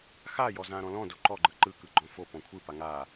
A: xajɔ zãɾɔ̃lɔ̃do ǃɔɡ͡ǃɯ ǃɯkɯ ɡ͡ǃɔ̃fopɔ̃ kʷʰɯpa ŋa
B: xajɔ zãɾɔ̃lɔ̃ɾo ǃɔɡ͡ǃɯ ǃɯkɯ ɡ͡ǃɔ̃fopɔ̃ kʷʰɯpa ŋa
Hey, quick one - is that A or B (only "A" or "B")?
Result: A